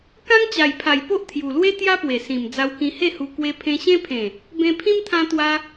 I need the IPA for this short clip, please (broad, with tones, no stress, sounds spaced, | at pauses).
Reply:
k ã˦ ŋ t͡ɕ a˨˩ j pʰ a˨˩ j p o˦ ʔ t̪ʰ j u˨˩ l w e˦ t̪ j a˦ p w e˨˩ s ĩ˨˩ m d͡z a˧ w k ĩ˧ h e˥˧ h u˧ k w e˧ pʰ ẽ˧ ɕ ẽ˦ pʰ ẽ˨˩ | b ẽ˧ pʰ ĩ˦ m t̪ʰ ã˧ t̪ w a˧